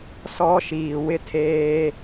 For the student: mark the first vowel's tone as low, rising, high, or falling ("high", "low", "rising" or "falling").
high